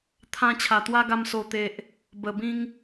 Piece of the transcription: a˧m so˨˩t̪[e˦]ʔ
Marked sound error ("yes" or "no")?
yes